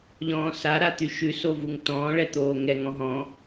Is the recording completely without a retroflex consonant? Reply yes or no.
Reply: no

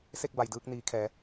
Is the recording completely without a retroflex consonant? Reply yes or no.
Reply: yes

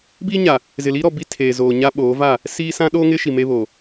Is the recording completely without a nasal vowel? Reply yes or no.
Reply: no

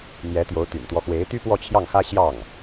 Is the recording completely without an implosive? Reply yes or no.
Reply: yes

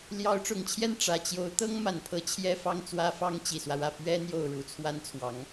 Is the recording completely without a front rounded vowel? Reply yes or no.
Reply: yes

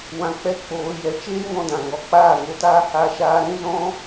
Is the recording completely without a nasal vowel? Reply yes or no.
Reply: no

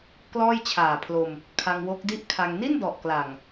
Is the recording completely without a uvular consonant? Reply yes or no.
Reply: yes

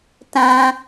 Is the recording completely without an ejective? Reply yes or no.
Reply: yes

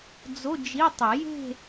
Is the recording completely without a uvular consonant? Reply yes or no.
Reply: yes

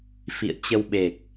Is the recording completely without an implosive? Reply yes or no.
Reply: no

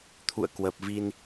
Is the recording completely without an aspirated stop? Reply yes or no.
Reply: no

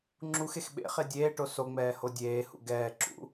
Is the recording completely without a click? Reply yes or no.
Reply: no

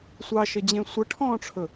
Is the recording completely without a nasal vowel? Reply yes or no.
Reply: no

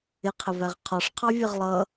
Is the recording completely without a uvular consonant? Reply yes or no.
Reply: no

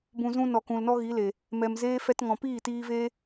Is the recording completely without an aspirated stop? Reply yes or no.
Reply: yes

